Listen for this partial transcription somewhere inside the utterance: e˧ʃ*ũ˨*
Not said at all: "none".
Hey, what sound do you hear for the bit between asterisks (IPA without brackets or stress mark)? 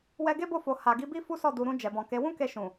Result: ũ˨